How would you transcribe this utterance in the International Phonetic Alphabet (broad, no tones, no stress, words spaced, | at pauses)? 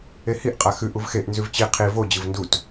ehiʔ qʼaxʉʔ uvxeʔ nzʉvt͡ɕi qʰi vo d͡ʑɨvndut